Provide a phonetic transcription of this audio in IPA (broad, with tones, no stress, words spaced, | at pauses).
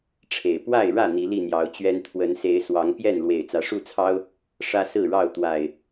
ʈ͡ʂʰe˨˩ɪ̯ pwa˥˨ɪ̯ɻä˥˨ n̪i˨˦li˥˨n̪jɑ˨˦ʊ̯t͡ɕɥɛ˦n t̪ʰwə˨˦nse˨˦ɪ̯ swɑ˨˦ŋpjɛ˥˨n lwe˨˩ɪ̯t͡sä˨˦ʂu˥˨t͡sʰɑ˦ʊ̯ | ʂä˦sɹ̩˥˨ɻɑ˥˨ʊ̯ t̪wa˨˩ɪ̯